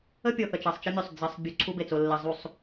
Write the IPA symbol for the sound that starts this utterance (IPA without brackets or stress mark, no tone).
ə